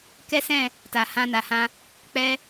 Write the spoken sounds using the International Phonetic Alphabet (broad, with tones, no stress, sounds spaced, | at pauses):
k ɛ˦ s ɛ̃˦˨ | t a˨ h ã˧ n a˨ h ã˧ | k͡p ɛ˧